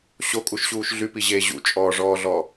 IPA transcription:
ɕ o kʼ u ʃ ɕ uː ʃ ɮ y p i ʑ eː ʑ ṵ t͡ʃʼ ɔː ʐ ɔː ɮ ɔ

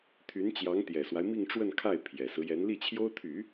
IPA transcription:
t̪ʰ y˧˥ n t͡ɕ j ɑ˧˥ ŋ t̪ j ɛ˨˩ s w a˦ ɪ̯ m i˥˧ ŋ ʈ͡ʂ w ə˥˧ n kʰ a˥˩ ɪ̯ pʰ j ɛ˨˩ s ɹ̩˦ j ɛ˧˥ n l i˥˩ t͡ɕʰ j o˥ ʊ̯ t̪ʰ y˨˩˦

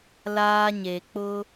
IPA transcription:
l aː˦ ɲ e˨ k͡p ʊ˦

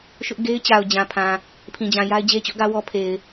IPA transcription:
ʃ ʊ˦ ʔ ɡ e˦ ɪ̯ t͡ɕ a˨ ʊ̯ d͡ʑ ã˨ pʰ ã˨ | pʰ ĩ˨ d͡ʑ ã˨ j a˦ ɪ̯ d͡ʑ e˦ t͡ɕ ʊ˦ ʔ ɡ ä˦ w ɔ˦ pʰ e˨ ɪ̯

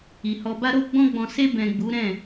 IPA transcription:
i˨ h ɔ˨ b a˧ ɾ o˧ ɡ͡b ɔ̃˧ ɡ͡b ɔ̃˨ s e˧ b ɛ̃˨ ɡ͡b u˨˦ ɾ ɛ̃˦˨

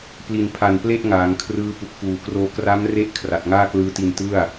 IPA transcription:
p l i˨˩ n pʰ a˨˩ n p l e˥˩ ʔ ŋ aː˩˦ ŋ kʰ r ɯː˦˥ p u˨˩ k̚ f uː˨˩ k r oː˧ k r a˦˥ m r e˦˥ ʔ kʰ r a˨˩ t̚ ŋ aː˥˩ k l ɯː˦˥ t i˧ n t ɯ˥˩ a̯

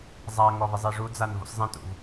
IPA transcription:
zˤ a ŋ ɔ v ɪ zˤ e ʐ u d͡z a n v o̰ s zˤ ẽ t ṵ v

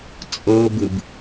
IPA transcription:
t͡sʼ ɤ b ɯ b

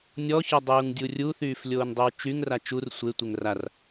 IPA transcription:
nʲ ɔ ç ɔ dˤ uː ŋ dʲ u rʲ u θ yː f lʲ oː n dˤ y w t͡ʃ y ŋ r a t͡ʃ u r sʷ e tʷ e ŋ r a r

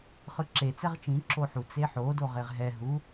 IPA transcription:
χ ɯ ǁ e t͡s ɛ ʁ t͡ʃ ĩ ǁ o ħ u t͡s e ħ o d o ʁ e ʁ ɦ ɛ ɦ u

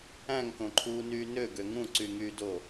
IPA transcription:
æ̃ ŋ k õ ǃʰ uː n yː n ø ɡ ø ŋ ũ ǀ y ŋ yː d o

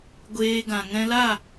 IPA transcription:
ɡʷ eː˧ ɡ ã˨ ŋ ɛ̃˧ l a˦˨

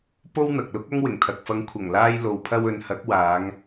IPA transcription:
p o˥ w n̪ ɐ˨ k̚ l ʊ˥ k̚ ɐ˥ ŋ w ɪ˨˩ ŋ t̪ʰ ɐ˨ k̚ f ɐ˨˧ ŋ kʷʰ ɐ˨˩ ŋ l aː˧ j l o˨˧ w pʰ ɐ˧ w ɵ˨˧ n h ɐ˨˥ k̚ w aː˨˧ ŋ

